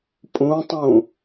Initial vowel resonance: nasal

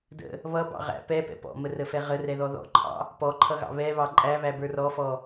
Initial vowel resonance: oral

